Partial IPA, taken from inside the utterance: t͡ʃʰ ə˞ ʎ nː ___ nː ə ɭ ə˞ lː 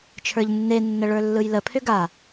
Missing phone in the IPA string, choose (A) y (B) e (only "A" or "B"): B